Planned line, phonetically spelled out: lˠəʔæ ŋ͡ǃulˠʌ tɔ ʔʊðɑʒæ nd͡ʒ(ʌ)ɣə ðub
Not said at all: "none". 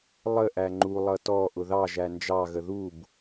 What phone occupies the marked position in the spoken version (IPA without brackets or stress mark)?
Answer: ɑ